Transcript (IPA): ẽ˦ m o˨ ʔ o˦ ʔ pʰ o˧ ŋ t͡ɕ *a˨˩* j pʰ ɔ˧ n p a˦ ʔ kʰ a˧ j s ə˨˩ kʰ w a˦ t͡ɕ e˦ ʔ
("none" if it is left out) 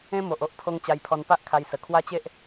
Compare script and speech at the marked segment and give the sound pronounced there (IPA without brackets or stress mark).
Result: a˧